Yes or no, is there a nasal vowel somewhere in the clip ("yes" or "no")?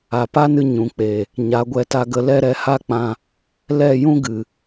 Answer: yes